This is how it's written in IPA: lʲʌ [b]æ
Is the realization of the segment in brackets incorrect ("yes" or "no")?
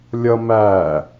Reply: yes